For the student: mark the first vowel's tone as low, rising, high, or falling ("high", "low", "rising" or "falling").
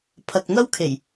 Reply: low